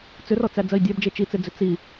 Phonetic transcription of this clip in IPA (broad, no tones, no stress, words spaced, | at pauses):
t͡sʏrɔt͡sæ d͡zɜi̯dʲæbd͡ʒe t͡ʃit͡sed͡zʏ t͡si